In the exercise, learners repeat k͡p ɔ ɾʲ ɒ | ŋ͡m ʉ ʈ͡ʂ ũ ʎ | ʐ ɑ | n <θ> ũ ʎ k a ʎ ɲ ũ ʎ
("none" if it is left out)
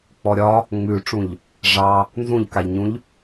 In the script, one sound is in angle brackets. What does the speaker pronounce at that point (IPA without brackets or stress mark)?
z